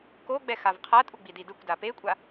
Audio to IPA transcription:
k o ɡ͡b ɛ x a v qʰ a tʼ u ɡ͡b i d i d ɯ kʷ d a p e kʷʼ a

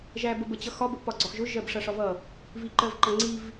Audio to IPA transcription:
ʒ æ b ə b ə t͡ɕ ʌ x ɒ b ə ʔ p ɒ ɡ͡ǀ ɒ x ʒ ʊ ʒ ɜ b ʂ ʌ ʂ ɒ v ʌ | v i ǃ ɜ v ǃ ʌ ŋ͡ǀ i v

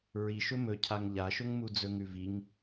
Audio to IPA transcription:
ɹ i ʃ ɵ m ɵ cʰ a ŋ ʎ a ʃ ɵ ŋ m u d͡z ɵ ŋ ʉ v i ŋ

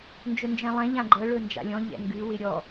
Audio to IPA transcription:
n d͡ʒ ɵ n d͡ʒ ɛ̃ lˠ ɛ̃ ʎ ã ɡ͡ǃ ɤ ɭ ɵ n d͡ʒ a̰ lʲ ɔ̃ ʎ ɛ̰ ŋ ɡ ʉ w ɪ ɾʲ ɔ

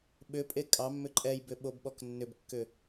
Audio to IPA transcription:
ɓ ʏ pʼ e kʼ ɑ mː ʏ ǃʼ ɛ j b ʏ ɓ o b ɓ ɔ k nː ʏ b kː ʏ

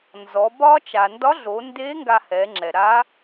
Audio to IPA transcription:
n z ɔ˩˧ b ɒ˥ t͡ʃ a˩ n d ɒ˧˥ ɮ o˩˧ n d e˧˥ ŋ ɡ a˧ h ɛ˩˧ ŋ͡ǁ ɛ˩ ɾ a˧˥

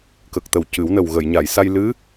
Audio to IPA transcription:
k ə˨˩ k̚ t̪ ə˨˩ w c ɨ˨˩˦ w n ə˨˩ w ɣ ə˨˩˨ j ɲ a˨˩˨ j s a˧ j l ɨ˧˥

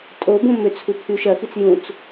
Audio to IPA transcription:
tʼ o b õ m ʏ t͡sʰ u pʰ y ʃ ɐ x i t͡s j ũ t͡s

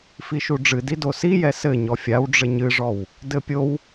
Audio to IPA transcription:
f i ʃ u ɖ͡ʐ ɨ d i d o s i j ɛ s ɘ ɲ ɔ fʲ a w ɖ͡ʐ ɘ ɲ ɨ ʐ ɔ w | d ɘ pʲ o w

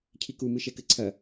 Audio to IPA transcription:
cʰ i k u m ɨ ʃ ɛ k ɘ ǀʰ ɐ

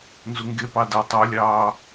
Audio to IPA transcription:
n z u ŋ ɡ e p ɑ d æ tˤ o lʲ ɑː

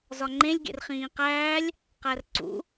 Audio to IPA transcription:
z ɒ ŋ͡ǃ ẽ lʲ ɡ ḛ r χ ĩː q æː lʲ | q æ r ǀ ṵ

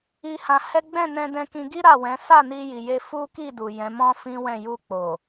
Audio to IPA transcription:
i˧ h ã˧ h ɛ˦ ɡ͡b ɛ̃˦˨ n ɛ̃˧ d ɛ̃˧ k ĩ˧ ɡ i˦ ɾ a˦˨ w ɛ̃˨˦ s a˦˨ n i˧ j i˨ j e˧ f u˦ k i˦˨ d u˨ j ɛ̃˨˦ m ɔ̃˦ f ĩ˦ w ɛ̃˦˨ j u˧ k͡p o˨

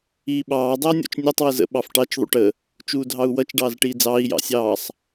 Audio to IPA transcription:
iː ɓ ɑː dˤ ʌː nʲ ɔ̰ t͡ʃ nʲ ɔ tˤ w ə z ə̰ ɓ ɑ f ʈ ɑ t͡ʃ ðˤ ṵ ʈ ə | t͡ʃ uː dʱ ɑ u̯ w ʌ t͡ʃ ɖ ɑː z ʈ iː d͡z ɑː i̯ j ɑ̰ sʲ ɑː sˤ

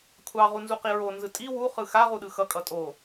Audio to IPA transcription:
kʷʰ ɑ ʁ u n z u q i ɹ o n z ɯ tʼ i w u χ ɯ x a ʁ u ɗ ɯ x ʌ kʼ ʌ tʼ o

